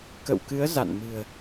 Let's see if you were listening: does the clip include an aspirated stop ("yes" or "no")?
no